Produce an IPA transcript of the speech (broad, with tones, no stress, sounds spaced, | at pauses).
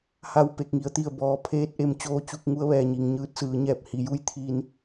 h a˧˩ w p e˧˩ k̚ ŋ i˩˧ ə̯ t̪ i˧˩ ə̯ b ɔː˩ pʰ eː˧ t̚ ʔ e˩˧ m t͡ɕ oː˧ t͡ɕ u˧ k̚ ŋ u˧˥ ə̯ ʋ ɛː˩ ɲ i˩ ŋ ɲ ɯː˧ t̚ s ɯː˩˧ ɲ ɛː˧˩ p̚ h i˩˧ j u˥˨ j t̪ʰ i˧ n